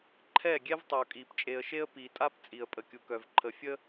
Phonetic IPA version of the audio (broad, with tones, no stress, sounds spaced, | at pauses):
ǃʰ ɛ˦˨ ɡʲ ɛ˦ v tˤ u˨ kʼ i˨ p t͡ʃʼ e˨ ə̯ ʃ e˦ ə̯ p i˨ tʼ a˦ p t͡sʼ i˨ ə̯ pʼ ə˨ kʲ u˨ k œ˨ v ǃʰ ə˨ fʲ ə˦